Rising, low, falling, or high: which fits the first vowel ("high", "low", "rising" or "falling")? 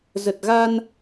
low